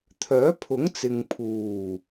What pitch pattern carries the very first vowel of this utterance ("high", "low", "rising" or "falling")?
rising